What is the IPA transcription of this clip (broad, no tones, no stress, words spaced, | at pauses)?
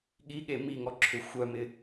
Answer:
ɠiɠe miŋɔ ǁʰʏxʷœmɪ